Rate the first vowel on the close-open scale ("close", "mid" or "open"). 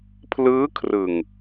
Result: close